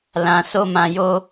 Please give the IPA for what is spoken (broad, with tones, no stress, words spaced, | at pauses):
lã˧so˦mã˧jo˦